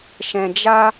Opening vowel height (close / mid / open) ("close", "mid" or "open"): mid